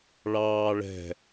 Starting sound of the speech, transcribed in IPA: ɭ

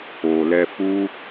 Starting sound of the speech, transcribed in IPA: o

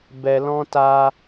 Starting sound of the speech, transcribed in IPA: b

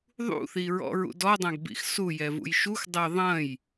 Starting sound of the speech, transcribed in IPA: ðˤ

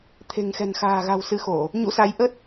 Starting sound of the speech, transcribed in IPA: t̪ʰ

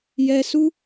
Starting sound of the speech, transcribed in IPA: j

